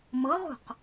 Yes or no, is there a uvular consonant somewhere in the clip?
yes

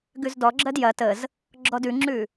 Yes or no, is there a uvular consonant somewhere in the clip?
no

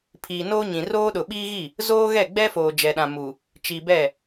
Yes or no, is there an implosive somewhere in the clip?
yes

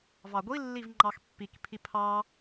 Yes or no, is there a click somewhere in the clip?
yes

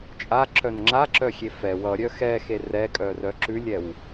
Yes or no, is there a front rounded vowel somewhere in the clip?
yes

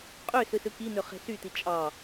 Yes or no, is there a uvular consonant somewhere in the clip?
yes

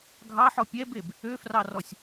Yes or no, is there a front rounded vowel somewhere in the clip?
yes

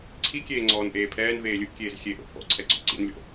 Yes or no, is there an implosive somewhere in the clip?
no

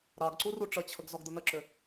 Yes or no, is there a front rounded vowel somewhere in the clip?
yes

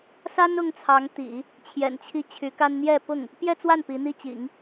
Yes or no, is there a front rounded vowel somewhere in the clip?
yes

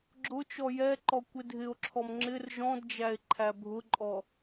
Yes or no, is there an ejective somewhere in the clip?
yes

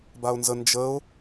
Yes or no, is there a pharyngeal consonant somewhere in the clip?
no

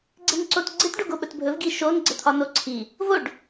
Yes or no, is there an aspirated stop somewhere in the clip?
yes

